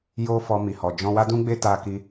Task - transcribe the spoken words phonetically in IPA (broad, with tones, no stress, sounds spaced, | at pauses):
j o˦ f ɔ˧ m i˨ h ɔ˨ d͡ʒ ɔ̃˧ w a˦ d ũ˦ ɡ͡b e˦ t a˧ k i˧